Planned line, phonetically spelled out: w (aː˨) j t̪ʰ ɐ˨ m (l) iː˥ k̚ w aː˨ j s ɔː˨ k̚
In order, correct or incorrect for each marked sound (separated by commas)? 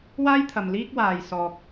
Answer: incorrect, correct